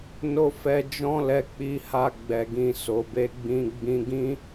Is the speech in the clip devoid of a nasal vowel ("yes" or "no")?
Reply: no